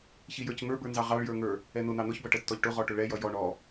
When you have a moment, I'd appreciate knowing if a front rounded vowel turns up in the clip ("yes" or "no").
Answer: no